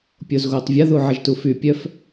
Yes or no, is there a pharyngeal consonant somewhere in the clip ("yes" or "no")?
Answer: yes